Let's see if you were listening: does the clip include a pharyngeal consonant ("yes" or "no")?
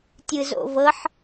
yes